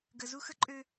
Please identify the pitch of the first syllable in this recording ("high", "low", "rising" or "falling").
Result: low